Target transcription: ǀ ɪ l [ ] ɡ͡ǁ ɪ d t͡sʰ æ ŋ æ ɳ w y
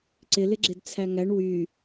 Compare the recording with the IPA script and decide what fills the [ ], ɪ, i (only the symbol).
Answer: ɪ